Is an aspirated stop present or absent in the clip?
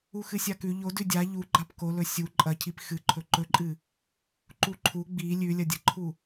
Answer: present